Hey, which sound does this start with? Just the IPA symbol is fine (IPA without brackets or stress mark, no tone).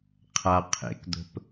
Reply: qʰ